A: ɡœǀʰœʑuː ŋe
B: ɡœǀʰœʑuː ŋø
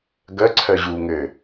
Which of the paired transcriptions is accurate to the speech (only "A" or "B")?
B